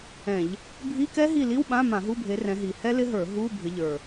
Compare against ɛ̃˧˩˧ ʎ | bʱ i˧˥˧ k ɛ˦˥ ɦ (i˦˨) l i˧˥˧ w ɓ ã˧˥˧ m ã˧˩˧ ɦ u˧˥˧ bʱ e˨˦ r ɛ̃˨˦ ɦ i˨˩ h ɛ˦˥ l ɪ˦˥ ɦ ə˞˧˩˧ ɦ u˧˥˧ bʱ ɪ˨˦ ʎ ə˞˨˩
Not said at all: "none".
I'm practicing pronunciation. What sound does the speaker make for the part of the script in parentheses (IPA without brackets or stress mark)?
i˦˨